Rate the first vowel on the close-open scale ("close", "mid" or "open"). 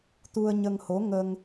close